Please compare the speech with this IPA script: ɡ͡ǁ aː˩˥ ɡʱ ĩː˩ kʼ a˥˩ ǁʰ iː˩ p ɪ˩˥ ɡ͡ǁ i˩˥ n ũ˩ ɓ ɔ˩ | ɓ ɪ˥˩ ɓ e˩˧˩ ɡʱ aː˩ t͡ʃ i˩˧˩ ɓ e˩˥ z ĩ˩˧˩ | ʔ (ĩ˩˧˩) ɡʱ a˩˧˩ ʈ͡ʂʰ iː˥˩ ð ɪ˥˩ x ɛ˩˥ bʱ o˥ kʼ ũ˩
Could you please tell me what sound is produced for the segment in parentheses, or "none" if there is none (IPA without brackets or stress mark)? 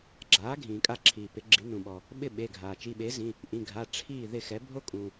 ĩ˩˧˩